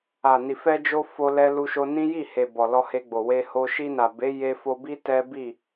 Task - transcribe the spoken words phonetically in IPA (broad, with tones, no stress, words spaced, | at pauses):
a˨ni˨ fɛ˧d͡ʒo˧ fo˦lɛ˦lu˦ʃo˦ nĩ˦ji˦˨he˨ bɔ˨lɔ˧he˧ɡ͡bo˨ we˧ho˧ ʃi˧na˨be˨˦ je˧fo˧bi˦ tɛ˦ bi˦˨